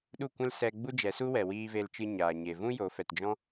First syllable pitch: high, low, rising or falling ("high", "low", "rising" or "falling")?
falling